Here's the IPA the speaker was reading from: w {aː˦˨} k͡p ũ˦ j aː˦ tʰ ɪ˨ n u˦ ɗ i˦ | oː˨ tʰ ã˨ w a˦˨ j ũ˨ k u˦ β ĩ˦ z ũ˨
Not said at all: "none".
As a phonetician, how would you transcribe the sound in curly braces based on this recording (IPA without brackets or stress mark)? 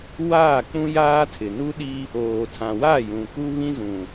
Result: aː˦˨